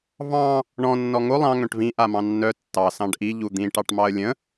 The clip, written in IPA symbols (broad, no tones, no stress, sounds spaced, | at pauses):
v ɑ̃ | ɳ ɔ̃ nː ɔ ŋ o lˠ ɑ̃ ŋ œ̃ ʈ v ĩ ʔ a m ɑ̃ nː œ tː ɑ s ɑ̃ ɖ ʔ i ʎ u d̪ ĩ ʈ ɑ ʈ m ɑ ə̯ lʲ ə̃